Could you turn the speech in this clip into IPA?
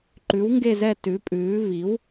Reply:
ǃʉ˩˥wŋɡe˦˨zɛ˦˨ tʉ˩˥pʼʉː˩˥ vi˩˥w

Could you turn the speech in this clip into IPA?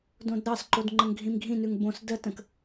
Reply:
dõdɾɑsǃod ŋ͡ǃəŋɡʱĩmɡʱĩnʉŋ bõs dətə̃k

